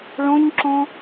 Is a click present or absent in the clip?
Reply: present